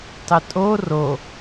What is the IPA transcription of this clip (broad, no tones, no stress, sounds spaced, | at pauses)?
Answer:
tˤ ɪ tʼ o r o